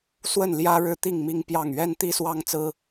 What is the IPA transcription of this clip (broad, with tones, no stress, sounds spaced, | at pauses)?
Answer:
s w ə˥˩ n l j ä˥ ɻ ɻ̩˥˧ t̪ i˥˩ ŋ m i˥ ŋ p j ɑ˥˩ ŋ ɥ ɛ˥ n t̪ i˥ s w ɑ˥ ŋ t͡s ɹ̩˥